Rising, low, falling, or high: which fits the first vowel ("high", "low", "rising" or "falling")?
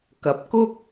rising